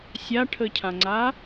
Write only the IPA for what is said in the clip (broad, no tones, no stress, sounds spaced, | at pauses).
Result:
sʲ a ʈʰ ə cʰ ã ŋ͡ǀ a